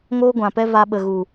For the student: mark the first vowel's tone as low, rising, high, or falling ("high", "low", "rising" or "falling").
high